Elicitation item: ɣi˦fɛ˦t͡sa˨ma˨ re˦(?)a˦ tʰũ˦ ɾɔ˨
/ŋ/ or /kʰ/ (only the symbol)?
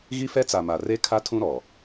kʰ